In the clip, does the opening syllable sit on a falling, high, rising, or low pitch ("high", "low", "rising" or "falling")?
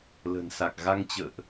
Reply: low